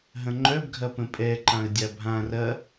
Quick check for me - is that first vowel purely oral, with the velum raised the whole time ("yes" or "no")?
no